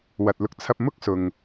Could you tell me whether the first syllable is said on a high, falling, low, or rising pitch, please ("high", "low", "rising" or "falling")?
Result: low